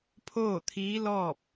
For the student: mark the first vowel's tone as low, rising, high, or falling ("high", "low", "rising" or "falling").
falling